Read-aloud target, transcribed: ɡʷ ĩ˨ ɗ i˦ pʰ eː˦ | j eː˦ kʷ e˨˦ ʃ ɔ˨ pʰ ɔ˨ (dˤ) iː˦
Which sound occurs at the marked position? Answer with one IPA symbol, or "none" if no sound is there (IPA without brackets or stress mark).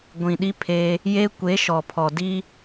d